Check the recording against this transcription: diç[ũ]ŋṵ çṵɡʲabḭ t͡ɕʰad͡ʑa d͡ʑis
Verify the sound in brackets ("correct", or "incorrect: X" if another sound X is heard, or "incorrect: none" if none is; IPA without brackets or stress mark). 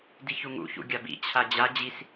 incorrect: u